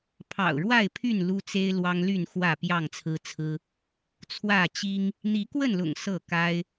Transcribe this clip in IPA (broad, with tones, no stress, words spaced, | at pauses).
pʰɑ̰˨˩ʊ̯ɻwa˥˨ɪ̯pʰy˥˨n lu˦t͡se˦ɪ̯ lwɑ˦ŋly˥˨n xwä˥˨pjɑ˥˨ŋt͡sʰɹ̩˦t͡sʰɹ̩˦ | t͡sʰwä˥˨t͡ɕi˦ŋ | n̪i˨˦kwə˥˨nlʊ̰˨˩ŋ sɤ˥˨ka˦ɪ̯